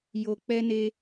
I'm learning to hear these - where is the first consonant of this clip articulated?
palate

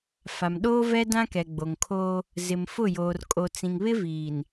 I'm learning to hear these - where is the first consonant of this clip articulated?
lips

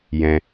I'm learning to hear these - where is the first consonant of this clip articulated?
palate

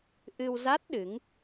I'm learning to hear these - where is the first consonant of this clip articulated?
throat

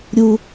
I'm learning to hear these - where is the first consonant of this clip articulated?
tongue tip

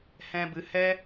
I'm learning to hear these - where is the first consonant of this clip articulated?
throat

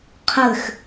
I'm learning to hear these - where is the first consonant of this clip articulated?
uvula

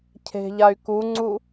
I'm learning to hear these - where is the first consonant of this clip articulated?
palate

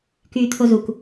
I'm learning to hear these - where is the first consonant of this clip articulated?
velum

